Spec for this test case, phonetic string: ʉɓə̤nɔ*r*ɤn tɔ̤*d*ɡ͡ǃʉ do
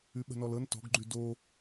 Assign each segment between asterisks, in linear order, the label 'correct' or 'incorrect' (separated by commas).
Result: incorrect, incorrect